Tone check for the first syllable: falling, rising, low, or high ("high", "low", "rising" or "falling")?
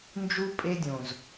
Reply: high